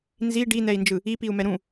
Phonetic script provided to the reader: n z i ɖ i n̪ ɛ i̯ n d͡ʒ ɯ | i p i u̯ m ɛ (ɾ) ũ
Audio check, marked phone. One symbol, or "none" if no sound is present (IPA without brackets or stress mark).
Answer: ɾ